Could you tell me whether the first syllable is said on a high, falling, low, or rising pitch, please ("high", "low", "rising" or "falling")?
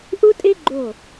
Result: high